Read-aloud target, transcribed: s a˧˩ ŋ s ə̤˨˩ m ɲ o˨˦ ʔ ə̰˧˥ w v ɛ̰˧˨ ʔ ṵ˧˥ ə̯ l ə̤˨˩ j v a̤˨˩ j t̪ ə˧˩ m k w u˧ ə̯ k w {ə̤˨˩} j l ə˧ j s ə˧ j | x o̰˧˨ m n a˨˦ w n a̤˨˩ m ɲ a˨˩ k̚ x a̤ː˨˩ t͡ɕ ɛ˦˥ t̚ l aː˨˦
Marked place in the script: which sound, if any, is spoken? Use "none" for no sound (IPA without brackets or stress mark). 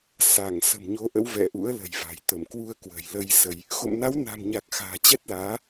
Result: ə̤˨˩